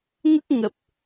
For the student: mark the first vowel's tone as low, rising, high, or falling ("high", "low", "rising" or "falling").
high